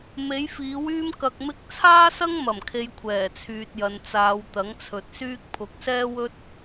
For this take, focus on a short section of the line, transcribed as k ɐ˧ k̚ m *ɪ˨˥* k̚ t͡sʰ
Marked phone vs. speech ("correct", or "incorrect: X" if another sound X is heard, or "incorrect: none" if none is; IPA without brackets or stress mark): incorrect: ɪ˥